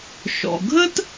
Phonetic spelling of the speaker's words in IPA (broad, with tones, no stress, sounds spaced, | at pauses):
ʃ ɔ̰˩ ɡʱ ə˥ t